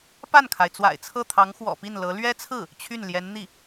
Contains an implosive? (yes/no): no